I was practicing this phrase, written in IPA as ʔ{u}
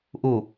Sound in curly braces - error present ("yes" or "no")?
no